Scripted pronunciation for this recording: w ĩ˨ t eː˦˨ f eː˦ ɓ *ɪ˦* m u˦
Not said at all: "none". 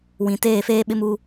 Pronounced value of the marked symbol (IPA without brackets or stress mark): ɪ˦